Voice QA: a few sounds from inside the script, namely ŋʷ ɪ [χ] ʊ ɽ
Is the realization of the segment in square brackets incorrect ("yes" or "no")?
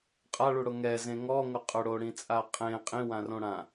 yes